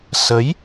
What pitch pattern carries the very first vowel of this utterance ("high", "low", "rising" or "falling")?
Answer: rising